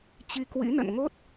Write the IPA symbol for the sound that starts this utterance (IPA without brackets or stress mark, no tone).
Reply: t͡ɕ